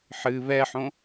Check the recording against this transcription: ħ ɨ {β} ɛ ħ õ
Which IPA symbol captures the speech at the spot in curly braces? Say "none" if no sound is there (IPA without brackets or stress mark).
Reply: β